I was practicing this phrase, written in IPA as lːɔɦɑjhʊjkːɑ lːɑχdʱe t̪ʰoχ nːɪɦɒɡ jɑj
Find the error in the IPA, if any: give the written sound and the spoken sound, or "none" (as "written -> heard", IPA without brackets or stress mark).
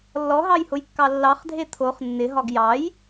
none